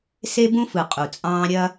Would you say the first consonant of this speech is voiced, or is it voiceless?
voiceless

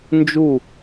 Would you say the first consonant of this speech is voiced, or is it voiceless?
voiced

